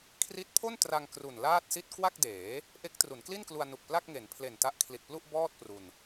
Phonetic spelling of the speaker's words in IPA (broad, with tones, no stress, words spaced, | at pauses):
kʰri˦˥t̚pʰo˥˩ntra˧ŋ kru˨˩nlaː˥˩t̚si˥˩t̚ kwa˥˩k̚deː˩˦ | ʔe˦˥k̚tru˩˦nkli˥˩nklu˧a̯ nu˨˩k̚pla˥˩k̚ŋe˩˦n pʰle˨˩nta˦˥ʔkʰli˨˩t̚plu˥˩ʔ bɔː˥˩t̚pru˧n